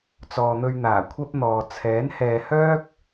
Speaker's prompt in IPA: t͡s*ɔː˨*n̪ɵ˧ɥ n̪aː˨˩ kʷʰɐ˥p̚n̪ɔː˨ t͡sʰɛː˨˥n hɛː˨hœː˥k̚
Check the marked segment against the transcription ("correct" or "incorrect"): correct